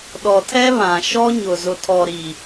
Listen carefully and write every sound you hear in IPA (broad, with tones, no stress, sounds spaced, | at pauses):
ɗ ɔ˨ tʰ ɛ˦ β ã˨ ʃ ɔ˦ ɲ ʊ˨ z ʊ˨ tʰ ɔ˨ ɾ i˨